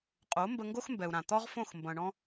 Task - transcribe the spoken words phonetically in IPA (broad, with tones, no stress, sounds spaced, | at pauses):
qʼ o˩˥ m b ə˧ ŋ ɡ o˥ x m b ɛ˩ u̯ ɾ ã˩ t̪ ɔ˥ ʁ f õ˥˩ x m b ɐ̃˩ ɳ ɔ̃˧